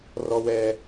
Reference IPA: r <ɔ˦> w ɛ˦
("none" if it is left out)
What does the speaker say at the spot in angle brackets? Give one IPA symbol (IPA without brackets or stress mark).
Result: ɔ˦